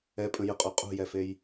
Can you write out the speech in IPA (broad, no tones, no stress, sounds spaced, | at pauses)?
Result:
ɛ pʼ ə̃ j ə qʼ o qʼ ṳ j ɛ f e j